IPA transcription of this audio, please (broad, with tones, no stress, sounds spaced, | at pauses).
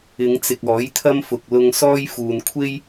ɪ˨˧ ŋ t͡s ɪ˨ k̚ ɔː˨˥ j t̪ʰ ɐ˥ m f ʊ˨ k̚ l ʊ˧ ŋ s ɔː˥ j f uː˨ n kʷʰ e˥ j